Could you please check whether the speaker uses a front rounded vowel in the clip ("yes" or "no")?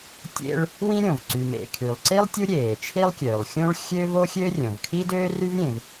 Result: yes